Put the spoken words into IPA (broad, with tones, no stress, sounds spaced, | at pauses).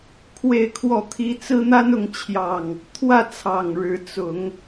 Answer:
kʰ w e˥˨ ɪ̯ kʰ w ɔ˥˨ t̪ʰ i˦ t͡s ɹ̩˦ n̪ a˦ n ʊ˨˦ ŋ t͡ɕʰ j ɑ˨˩ ŋ | t̪ʰ w ä˥˨ t͡sʰ ɑ˨˩ ŋ ɻ ɻ̩˨˦ t͡s ʊ˨˦ ŋ